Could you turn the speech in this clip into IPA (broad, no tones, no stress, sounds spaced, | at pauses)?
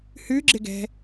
h ʉ ɡ͡ǁ ɪ ɡ ɛ̤